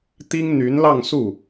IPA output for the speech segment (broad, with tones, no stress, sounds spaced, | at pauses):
t̪ i˥ ŋ n̪ y˧˥ n l ɑ˥˧ ŋ s u˥˩